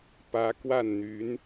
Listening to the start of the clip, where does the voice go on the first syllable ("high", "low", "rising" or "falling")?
rising